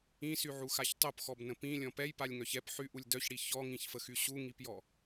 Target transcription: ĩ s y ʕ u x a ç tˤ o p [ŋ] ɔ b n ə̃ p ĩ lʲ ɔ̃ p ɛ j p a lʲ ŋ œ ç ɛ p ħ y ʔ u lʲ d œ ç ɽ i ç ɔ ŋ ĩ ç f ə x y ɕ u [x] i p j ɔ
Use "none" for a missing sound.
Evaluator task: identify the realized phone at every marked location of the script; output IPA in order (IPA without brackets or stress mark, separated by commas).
x, ŋ